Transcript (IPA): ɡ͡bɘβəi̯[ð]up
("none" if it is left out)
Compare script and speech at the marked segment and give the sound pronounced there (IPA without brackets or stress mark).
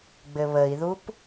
ð